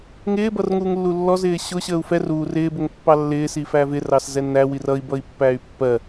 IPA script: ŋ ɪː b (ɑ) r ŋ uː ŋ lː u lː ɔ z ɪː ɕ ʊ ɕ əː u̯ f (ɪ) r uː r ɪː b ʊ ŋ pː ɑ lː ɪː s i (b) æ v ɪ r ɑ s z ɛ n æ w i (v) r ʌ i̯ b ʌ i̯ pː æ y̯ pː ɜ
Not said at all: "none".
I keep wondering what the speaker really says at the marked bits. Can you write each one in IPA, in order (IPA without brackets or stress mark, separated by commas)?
ʌ, ɛ, f, none